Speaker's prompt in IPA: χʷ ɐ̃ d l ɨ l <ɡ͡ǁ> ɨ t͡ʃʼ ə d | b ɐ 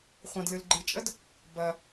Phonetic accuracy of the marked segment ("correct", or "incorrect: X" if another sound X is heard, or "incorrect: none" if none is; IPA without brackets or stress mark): incorrect: ɡ͡ǃ